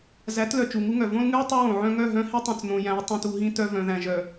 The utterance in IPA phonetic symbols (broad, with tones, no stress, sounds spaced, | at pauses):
z æ˨˦ t l œ˨ t͡ʃ u˨ ŋ u˦ ŋ œ˨ v õ˦ l ŋ ʉ˦ j tˤ ʉ˦ w õ˨ ʕ œ̃˦ ŋ œ˦˨ ɦ œ̃˦ h i˦ tˤ œ̃˨ t͡s n õ˨ j æ̃˨˦ j tˤ ũ˨ t u˨ ɦ ĩ˦ t œ˦ v œ̃˨ ð æ̃˨ ʒ œ˨